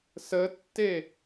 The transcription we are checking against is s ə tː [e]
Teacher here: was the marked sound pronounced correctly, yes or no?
yes